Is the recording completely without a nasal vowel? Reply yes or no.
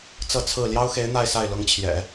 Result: yes